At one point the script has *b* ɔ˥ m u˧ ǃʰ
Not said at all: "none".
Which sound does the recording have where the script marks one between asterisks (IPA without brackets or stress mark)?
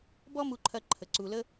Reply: b